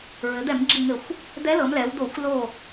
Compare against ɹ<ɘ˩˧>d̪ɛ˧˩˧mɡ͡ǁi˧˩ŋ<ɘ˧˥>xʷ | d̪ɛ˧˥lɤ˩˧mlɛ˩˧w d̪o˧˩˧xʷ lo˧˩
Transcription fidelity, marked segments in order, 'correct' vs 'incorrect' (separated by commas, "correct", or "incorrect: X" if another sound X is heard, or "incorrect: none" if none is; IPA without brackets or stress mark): correct, incorrect: ɘ˧˩˧